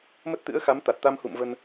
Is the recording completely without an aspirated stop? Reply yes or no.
yes